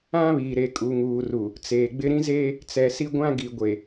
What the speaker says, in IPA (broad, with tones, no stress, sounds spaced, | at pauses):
ã˦ β iː˨ ɾ e˨ kʼ u˨ ŋ uː˨ r u˨ | t͡s eː˨ ɡ͡b ɪ˦ ɾ ĩ˦ z eː˦ | t͡s ɛ˨ s i˦ ɡʷ ã˦ ɡ i˨ ɡʷ e˨